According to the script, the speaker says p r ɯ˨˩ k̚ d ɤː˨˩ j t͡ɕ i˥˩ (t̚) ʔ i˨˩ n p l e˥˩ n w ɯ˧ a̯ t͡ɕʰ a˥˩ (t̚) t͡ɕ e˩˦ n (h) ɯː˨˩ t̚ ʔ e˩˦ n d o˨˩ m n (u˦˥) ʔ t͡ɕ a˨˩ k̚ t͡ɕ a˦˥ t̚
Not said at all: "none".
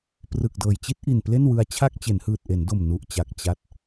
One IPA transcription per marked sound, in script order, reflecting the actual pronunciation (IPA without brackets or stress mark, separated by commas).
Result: t̚, k̚, h, u˨˩